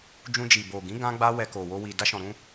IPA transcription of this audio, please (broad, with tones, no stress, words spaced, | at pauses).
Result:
d͡ʒũ˧d͡ʒi˨bo˨ ɡĩ˨˦ ɡã˦ɡ͡ba˦ wɛ˧ko˨wo˧ wi˨da˧ʃɔ̃˨ɾũ˧